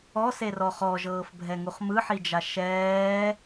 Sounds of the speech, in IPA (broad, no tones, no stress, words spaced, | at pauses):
ɔserɔ χɔʒɤːfbʱɛŋuχ mɯħid͡ʒa ʃɛː